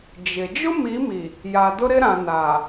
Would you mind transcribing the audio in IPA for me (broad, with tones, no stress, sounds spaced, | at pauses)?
d͡ʒ ɪ˨ d͡ʒ ʊ˦ m i˨˦ m i˨ | j a˨ d ʊ˦ ɾ ɪ˦ ɾ ã˨ n a˨